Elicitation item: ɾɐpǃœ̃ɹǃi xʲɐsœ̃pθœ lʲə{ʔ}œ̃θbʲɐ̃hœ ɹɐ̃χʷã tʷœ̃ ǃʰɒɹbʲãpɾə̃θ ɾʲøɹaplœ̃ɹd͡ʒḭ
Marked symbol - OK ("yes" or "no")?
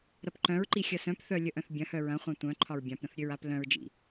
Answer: yes